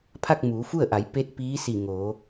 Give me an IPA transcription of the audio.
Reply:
pʰ a˥˨ k̚ m uː˩˧ f u˥˨ ə̯ ʔ a˩˧ j p e˧˥ t̚ p iː˧˥ s i˧˩ ŋ oː˩˧

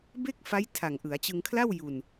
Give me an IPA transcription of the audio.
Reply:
b e˥˩ k̚ f a˦˥ j tʰ a˨˩ ŋ ʔ ɯ˩˦ a̯ t͡ɕ ɯ˧ ŋ kʰ l a˥˩ w j u˧ n

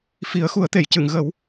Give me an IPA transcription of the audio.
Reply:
f i˨˩˦ ə̯ x u˨˩˦ ə̯ t̪ e˨˩˨ j c ɨ˨˩˨ ŋ ɣ ə˨˩˦ w

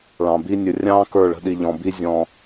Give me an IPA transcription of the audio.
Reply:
ɭ ɑ̃˨ b i˦ nʲ ə˨ rʲ ɑ̃ː˦ k ə˞˦˨ ɭ ə̤˦ ɗ i˨ ʎ ɔ̃˨ b i˦ zʲ ɔ̃˨

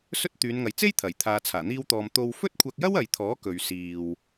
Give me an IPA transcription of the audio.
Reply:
s ɵ˥ t̚ t̪ yː˨˧ n ŋ ɐ˨ j t͡s e˥ j t̪ʰ ɐ˨˩ j t̪ʰ aː˨ t͡sʰ aː˨˩ n̪ iː˧ w t̪ ɔː˨ m t̪ o˧ w f ɵ˥ t̚ kʷʰ ɐ˧ k̚ j ɐ˥ w ɐ˨ j t̪ʰ ɔː˨˥ k ɵ˨ ɥ s iː˨ w

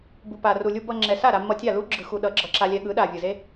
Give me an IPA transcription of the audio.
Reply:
b u˨ p a˨ r u˨ lʲ u˧ b ʌ˧ ŋ͡ǁ ɛ˨ s a˦˨ ɾ a˧ mː ʌ˧ tʲ a˦˨ l u˦ ɡ͡ǁ ɯ˨ x u˨ ɗ ʌ˨˦ ɡ͡ǁ ʌ˨˦ ǁ a˧ lʲ ɛ˧ ɠ ɯ˨˦ ɗ a˨ vʲ ɯ˨ z e˦

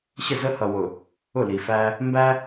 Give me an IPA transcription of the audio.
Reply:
ɕ ə˦˨ z ə˦ h ʌ˨ w ʊ˨ | ʊ˦˨ l i˨ f æ˦ | m b æ˦

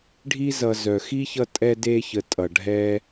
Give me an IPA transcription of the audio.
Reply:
ɖʱ i˥ z ʌ˨ z œ˩ x i˥ ç ʌ˦ tʼ ɛ˦ d e˦ ç ə˨ tʼ ʌ˩ ɖʱ ɛ˥

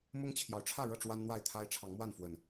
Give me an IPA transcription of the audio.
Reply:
m ʊ˦ ŋ t͡ɕʰ j ɑ˨˦ ʊ̯ ʈ͡ʂʰ ä˥˨ ɻ ɤ˥˨ ʈ͡ʂ w a˦ n n̪ w a˥˨ ɪ̯ t̪ʰ a˦ ɪ̯ ʈ͡ʂʰ ɑ˨˦ ŋ m w a˥˨ n f w ə˨˩ n

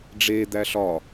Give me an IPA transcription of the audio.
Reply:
ɖ͡ʐ e d̪ æ ɬ ɒ

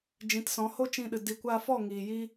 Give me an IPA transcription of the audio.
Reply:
d͡ʒ ĩ˨˦ t s ɔ̃˨˦ h o˦ t͡ʃ ĩ˧ ɗ ɨ˨ d i˨ kʷ a˧ f ɔ˦˨ ŋ iː˨ j i˦

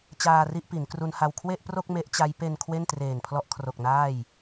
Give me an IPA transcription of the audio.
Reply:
t͡ɕ aː˧ r i˥˩ ʔ p i˩˦ n k r u˧ n h a˧ w kʰ w e˥˩ ʔ p r o˥˩ k̚ m e˦˥ ʔ t͡ɕ a˦˥ j p e˧ n kʰ w e˥˩ n t r eː˨˩ n pʰ l ɔ˦˥ ʔ kʰ r o˨˩ k̚ n aː˥˩ j

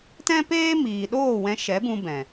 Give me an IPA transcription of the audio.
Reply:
t ɛ̃˦ p eː˦ m iː˨ ɗ oː˦˨ w ɛ̃˧ ʃ ɛ˨˦ b ũ˧ b ɛ̃˨

